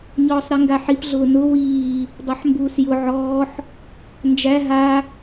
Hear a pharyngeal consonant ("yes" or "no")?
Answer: yes